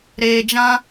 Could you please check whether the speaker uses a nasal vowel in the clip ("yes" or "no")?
yes